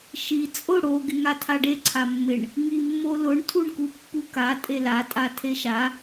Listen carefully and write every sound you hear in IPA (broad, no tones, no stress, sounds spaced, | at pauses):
ʃ i t͡sʼ ʊ ɽ o ɡ ɪ ŋ a tʰ a ɖ e ǀʰ a mː ɪ ɳ | ŋ i mː o l ʊ ɳ tʰ u ɳ k u pː u k a tʼ e l a tʼ a tʰ e ʃ a